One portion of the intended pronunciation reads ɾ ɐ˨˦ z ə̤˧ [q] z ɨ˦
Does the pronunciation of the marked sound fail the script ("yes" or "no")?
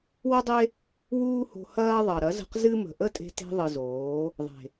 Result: no